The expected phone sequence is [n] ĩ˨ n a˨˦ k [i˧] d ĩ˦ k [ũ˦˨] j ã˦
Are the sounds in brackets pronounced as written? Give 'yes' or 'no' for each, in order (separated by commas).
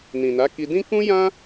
yes, yes, no